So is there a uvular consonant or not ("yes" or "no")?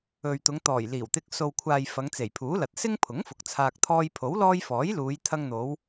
no